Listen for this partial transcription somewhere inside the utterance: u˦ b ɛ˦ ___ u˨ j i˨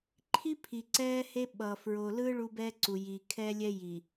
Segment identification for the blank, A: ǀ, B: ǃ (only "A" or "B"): A